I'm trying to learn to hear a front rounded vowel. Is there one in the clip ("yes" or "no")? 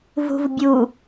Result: no